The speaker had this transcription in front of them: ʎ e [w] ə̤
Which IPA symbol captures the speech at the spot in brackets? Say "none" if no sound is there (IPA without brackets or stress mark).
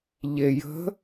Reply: j